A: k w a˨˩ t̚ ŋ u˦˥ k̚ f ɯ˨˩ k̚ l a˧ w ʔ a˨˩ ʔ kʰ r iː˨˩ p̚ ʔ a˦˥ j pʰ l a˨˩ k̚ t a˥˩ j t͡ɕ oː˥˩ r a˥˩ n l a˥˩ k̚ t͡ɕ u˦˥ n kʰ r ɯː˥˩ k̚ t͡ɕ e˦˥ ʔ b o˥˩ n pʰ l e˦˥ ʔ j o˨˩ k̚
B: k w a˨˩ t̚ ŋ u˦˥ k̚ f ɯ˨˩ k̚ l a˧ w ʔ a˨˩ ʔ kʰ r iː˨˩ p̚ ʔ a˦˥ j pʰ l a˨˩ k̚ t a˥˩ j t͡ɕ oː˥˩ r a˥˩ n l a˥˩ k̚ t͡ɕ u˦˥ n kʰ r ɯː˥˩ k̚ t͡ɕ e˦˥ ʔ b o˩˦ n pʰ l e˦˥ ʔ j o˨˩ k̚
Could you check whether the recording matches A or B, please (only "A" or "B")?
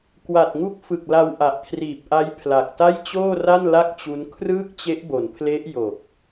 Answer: B